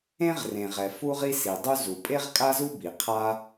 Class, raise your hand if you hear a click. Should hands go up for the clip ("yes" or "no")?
no